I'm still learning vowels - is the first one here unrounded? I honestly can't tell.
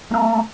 no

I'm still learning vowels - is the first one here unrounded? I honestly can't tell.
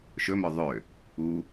no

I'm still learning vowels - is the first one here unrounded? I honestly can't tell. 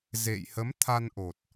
yes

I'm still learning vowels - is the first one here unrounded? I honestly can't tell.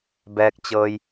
yes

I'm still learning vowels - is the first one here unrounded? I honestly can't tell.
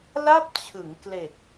yes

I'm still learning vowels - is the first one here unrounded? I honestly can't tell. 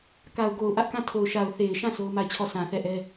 yes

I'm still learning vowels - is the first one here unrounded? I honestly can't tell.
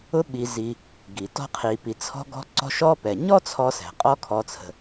no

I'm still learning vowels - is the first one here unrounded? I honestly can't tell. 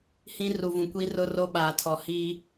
yes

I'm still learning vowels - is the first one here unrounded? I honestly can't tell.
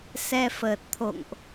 yes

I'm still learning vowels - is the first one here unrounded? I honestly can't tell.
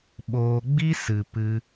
no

